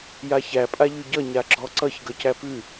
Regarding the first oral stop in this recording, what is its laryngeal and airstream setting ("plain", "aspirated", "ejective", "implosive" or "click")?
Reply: ejective